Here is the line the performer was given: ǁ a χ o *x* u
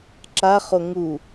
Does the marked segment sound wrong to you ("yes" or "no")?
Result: yes